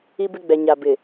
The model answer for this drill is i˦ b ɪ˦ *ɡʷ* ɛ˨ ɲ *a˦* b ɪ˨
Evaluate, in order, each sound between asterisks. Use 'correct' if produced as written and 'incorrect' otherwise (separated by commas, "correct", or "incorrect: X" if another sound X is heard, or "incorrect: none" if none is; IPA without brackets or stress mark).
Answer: incorrect: ɡ͡b, incorrect: a˨